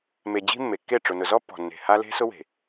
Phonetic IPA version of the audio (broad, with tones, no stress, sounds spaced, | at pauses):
m e˨ d͡ʑ i̤˦ mː e˨ kː e˦˨ ʈ͡ʂ ʊ˨ n ʊ˨ z ɔ˦ pː ɔ̤˨ nː e̤˨ h a˦ l e̤˦ s ʊ˦ w e̤˨